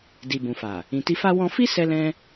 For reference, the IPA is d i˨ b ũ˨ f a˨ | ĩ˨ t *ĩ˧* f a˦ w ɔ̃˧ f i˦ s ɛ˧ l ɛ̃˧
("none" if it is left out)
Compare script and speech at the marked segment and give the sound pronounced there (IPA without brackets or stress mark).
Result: i˧